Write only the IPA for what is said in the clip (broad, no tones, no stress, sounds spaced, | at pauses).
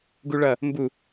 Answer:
ɡ u ɭ ʌ | m b u